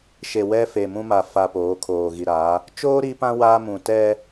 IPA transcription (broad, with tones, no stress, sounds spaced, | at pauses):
ʃ e˨ w ɛ˦ f e˨ m ũ˦ m a˨ f a˨ p oː˨˦ kʰ oː˨ ɣ i˨ ɾ a˨˦ | t͡ʃ oː˦ ɾ i˦ p ã˦ w a˦ m ũ˨ t ɛ˦